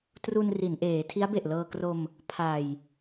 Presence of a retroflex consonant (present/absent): absent